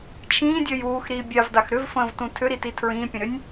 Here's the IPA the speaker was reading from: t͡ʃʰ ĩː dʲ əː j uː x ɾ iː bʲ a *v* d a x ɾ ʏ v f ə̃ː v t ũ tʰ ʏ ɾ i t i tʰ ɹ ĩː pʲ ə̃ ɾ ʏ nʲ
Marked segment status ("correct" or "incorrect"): correct